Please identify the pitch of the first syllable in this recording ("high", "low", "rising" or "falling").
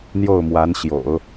falling